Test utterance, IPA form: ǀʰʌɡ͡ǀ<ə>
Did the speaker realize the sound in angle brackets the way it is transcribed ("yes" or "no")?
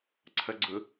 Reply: no